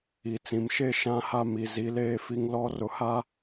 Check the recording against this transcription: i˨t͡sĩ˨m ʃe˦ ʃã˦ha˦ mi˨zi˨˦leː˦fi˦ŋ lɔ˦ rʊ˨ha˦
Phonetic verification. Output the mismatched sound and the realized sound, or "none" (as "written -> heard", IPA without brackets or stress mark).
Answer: none